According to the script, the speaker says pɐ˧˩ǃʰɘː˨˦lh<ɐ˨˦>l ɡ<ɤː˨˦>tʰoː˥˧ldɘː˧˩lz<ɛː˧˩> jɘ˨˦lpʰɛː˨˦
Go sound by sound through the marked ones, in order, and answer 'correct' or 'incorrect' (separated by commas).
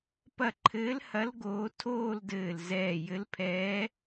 correct, incorrect, correct